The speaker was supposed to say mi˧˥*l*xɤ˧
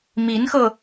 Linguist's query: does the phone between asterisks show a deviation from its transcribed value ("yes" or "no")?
yes